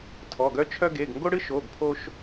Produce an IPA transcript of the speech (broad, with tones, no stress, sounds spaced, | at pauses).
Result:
tʰ ɔ˩˧˩ ɡ œ˦ t͡ʃʰ œ˦ ɡ e˩˧˩ ɡ ŋ ɡ o˦ ɽ ɨ˦ ʃ o˩˧˩ ɡ pʰ o˦ ʃ